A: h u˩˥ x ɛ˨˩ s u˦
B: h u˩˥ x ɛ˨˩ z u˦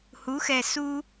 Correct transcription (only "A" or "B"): A